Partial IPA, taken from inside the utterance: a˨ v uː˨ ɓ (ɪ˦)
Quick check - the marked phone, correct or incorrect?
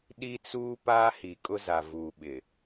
incorrect